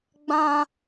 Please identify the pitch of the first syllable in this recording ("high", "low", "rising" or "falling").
high